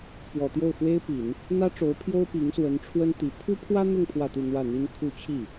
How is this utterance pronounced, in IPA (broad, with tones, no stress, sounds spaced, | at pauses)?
p w ɔ˨˩ t̪ j o˥˩ ʊ̯ x w e˥ ɪ̯ p i˨˩˦ n | n̪ ä˥ ʈ͡ʂ o˧˥ ʊ̯ pʰ j o˥ ʊ̯ p i˧˥ ŋ s w ə˧˥ n ʈ͡ʂʰ w ə˥ n t̪ i˧˥ pʰ u˥ pʰ w ä˥ n̪ ʊ˥˧ ŋ pʰ w ä˥˧ t̪ u˥˧ n̪ w ä˥˩ n̪ i˥ n kʰ u˥˧ t͡ɕʰ i˥˩